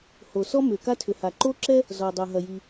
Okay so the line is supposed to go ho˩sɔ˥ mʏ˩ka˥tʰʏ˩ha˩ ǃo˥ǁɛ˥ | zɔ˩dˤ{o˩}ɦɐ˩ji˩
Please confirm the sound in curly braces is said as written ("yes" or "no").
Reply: yes